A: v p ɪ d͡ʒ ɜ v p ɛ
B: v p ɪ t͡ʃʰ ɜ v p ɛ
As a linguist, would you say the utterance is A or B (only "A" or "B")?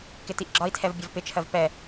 B